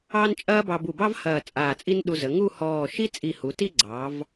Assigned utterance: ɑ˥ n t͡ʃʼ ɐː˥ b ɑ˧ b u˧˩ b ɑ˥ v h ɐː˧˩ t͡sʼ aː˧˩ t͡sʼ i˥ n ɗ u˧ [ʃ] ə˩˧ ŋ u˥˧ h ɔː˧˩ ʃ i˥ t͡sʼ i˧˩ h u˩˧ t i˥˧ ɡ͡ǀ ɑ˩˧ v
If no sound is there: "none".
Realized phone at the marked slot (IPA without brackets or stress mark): z